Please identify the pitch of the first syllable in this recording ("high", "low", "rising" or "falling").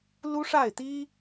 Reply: high